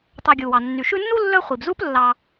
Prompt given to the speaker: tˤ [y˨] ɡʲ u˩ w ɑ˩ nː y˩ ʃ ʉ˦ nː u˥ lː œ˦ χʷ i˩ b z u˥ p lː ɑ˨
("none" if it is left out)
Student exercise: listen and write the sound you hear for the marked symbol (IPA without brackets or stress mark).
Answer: ø˨